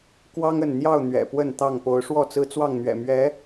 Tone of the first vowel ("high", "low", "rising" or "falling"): high